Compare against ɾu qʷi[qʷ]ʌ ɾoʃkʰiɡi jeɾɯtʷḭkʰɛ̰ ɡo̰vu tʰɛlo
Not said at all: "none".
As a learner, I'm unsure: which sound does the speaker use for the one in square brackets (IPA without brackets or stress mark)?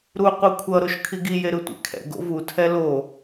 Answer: kʷʰ